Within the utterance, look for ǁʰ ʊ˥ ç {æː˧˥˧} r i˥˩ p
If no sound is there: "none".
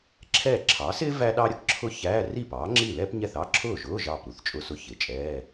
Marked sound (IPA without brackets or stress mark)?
æː˧˥˧